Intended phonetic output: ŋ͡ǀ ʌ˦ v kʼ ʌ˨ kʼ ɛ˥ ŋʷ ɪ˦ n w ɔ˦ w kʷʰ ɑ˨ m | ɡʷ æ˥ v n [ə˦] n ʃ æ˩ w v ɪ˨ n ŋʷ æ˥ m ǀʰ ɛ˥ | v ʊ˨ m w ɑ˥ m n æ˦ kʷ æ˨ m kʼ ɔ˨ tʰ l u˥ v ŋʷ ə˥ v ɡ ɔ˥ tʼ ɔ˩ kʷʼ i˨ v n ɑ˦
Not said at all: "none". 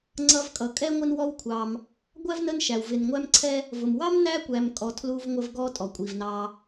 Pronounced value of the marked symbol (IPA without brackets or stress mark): ə˦